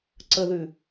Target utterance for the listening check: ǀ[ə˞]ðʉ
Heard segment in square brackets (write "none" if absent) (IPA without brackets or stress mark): ə